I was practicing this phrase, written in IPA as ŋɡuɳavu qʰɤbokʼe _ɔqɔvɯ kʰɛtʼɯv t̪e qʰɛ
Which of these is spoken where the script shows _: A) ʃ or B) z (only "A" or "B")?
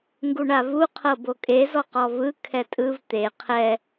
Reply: B